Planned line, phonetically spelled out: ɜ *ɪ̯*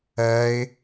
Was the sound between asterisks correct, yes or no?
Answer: yes